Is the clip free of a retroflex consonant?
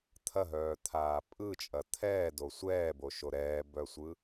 yes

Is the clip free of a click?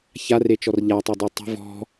yes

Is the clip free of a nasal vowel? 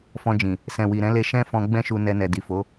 no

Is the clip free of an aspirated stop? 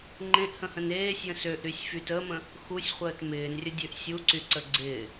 yes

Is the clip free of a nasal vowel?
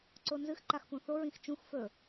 no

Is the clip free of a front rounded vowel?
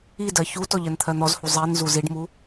yes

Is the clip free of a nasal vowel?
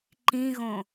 no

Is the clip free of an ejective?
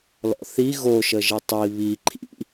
yes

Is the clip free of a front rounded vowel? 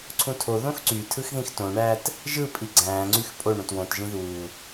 no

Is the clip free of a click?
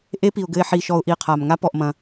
yes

